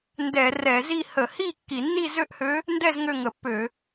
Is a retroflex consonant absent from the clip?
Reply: yes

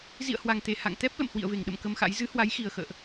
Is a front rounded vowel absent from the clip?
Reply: yes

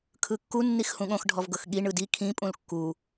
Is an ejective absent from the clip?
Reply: no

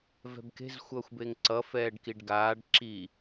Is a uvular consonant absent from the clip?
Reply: yes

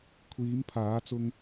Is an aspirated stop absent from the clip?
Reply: no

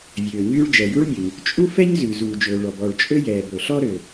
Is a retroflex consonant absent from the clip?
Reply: no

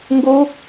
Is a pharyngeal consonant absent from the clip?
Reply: yes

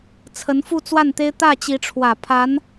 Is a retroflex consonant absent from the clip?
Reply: no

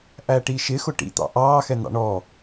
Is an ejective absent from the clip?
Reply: yes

